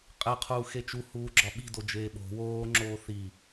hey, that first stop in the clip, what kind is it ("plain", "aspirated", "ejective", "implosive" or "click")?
ejective